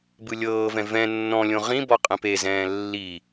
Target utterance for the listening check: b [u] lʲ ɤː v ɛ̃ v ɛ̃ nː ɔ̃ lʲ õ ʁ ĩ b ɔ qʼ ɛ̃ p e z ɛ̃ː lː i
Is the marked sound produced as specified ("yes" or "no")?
no